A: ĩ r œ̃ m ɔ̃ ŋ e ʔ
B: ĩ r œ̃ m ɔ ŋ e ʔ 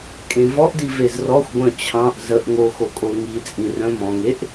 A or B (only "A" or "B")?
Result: A